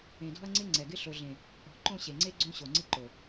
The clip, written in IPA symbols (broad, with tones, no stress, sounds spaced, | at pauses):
ẽ˨ d ɔ̤˦ ɐ̯ ŋ͡ǀ ɪ˦ ŋ͡ǀ ɛ˨ ɡ ɪ˦ ɬ o˨ ɮ ẽ˨ | ɔ̤˨ ǃ õ˦˨ ɕ e˨ ŋ͡ǀ e˦ ɡ͡ǀ õ˦ ɕ o˨ ŋ͡ǀ ɪ˦ ǃ o˨